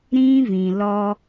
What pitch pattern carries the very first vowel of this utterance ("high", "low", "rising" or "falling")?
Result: high